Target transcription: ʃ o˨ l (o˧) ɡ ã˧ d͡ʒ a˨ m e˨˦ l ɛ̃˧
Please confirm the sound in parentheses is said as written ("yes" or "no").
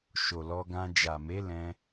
no